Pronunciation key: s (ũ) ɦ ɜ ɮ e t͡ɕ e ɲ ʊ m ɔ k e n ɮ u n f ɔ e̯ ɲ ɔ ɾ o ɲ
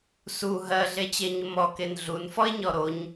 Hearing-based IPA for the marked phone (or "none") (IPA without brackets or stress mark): u